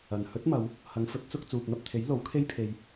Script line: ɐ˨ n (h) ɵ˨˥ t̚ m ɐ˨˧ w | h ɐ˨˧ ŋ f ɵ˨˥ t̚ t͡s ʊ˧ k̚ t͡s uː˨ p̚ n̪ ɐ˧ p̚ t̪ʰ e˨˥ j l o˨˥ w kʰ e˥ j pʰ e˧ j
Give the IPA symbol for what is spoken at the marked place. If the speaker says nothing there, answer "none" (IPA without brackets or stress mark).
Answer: h